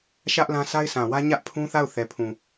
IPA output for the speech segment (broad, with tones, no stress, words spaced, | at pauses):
ʃä˦ʔlã˦ sa˦ɪ̯sã˨wä˦ ɲä˦ʔpʰũ˦θa˦˨ʊ̯ θɛ˨pʰũ˨